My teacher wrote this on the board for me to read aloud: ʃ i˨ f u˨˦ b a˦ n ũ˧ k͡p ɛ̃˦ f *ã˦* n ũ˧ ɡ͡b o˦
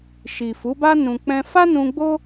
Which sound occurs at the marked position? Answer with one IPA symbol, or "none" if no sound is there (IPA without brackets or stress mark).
a˦